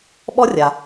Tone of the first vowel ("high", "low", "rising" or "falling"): high